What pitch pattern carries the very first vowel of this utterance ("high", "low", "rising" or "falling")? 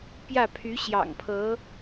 falling